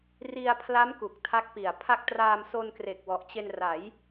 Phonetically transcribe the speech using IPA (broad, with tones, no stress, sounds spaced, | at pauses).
r i˧ a̯ pʰ l a˦˥ m k u˨˩ k̚ tʰ a˦˥ k̚ p i˨˩ a̯ pʰ a˦˥ k̚ t r aː˧ m s o˧ n k r e˨˩ k̚ w ɔ˨˩ ʔ t͡ɕ e˧ n r a˩˦ j